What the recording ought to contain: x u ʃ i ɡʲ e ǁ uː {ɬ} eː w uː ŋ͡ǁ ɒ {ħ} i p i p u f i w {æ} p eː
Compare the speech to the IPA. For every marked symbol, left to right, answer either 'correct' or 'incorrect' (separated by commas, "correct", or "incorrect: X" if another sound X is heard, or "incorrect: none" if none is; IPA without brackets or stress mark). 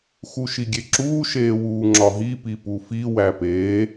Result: incorrect: ʃ, incorrect: ɦ, correct